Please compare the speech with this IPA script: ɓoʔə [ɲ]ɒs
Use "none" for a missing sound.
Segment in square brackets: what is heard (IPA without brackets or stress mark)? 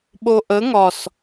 ŋ